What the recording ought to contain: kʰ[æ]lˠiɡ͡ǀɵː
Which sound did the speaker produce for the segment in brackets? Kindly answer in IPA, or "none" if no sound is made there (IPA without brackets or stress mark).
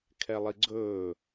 ɛ